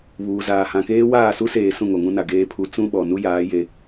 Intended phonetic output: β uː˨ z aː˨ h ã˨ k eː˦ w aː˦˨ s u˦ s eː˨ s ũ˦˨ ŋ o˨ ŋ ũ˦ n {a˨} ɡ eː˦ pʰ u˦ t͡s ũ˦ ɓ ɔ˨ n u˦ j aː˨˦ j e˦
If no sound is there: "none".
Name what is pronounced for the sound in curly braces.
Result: a˨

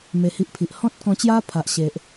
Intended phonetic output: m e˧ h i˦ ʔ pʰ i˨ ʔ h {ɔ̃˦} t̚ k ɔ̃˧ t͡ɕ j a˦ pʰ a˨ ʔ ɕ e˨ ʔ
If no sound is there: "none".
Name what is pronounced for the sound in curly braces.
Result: ɔ̃˦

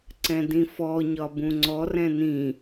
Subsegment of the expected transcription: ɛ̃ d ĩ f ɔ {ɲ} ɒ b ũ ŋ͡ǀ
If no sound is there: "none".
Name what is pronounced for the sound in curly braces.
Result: ɲ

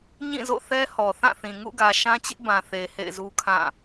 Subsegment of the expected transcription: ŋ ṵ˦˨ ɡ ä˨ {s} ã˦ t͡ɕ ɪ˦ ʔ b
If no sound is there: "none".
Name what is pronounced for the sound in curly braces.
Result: ʃ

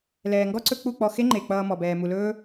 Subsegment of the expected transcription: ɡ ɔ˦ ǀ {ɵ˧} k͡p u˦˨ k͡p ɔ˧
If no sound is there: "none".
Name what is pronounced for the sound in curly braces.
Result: ɵ˧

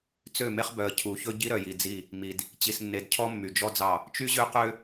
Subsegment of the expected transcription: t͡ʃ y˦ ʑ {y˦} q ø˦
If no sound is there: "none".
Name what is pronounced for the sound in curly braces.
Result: ø˦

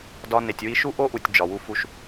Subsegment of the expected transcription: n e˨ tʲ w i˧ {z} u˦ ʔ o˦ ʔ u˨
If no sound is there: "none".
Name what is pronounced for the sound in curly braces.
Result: ʃ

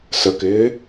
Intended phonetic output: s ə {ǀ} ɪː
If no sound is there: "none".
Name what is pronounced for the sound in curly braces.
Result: k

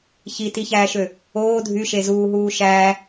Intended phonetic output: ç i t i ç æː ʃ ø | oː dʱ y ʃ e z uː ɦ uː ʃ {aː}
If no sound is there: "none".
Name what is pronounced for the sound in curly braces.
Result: æː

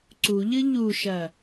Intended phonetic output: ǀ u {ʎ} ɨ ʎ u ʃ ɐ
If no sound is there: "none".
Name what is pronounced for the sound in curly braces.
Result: ʎ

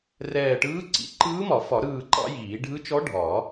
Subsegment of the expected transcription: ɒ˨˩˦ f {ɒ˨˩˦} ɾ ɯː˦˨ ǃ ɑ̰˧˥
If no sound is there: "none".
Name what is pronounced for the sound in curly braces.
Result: ɒ˨˩˦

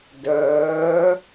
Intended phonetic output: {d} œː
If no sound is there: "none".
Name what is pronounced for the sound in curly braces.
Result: d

